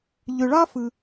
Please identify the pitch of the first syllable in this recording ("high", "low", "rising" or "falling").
low